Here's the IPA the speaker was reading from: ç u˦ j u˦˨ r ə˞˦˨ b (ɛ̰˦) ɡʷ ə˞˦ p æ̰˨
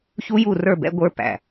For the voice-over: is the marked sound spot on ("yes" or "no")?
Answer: yes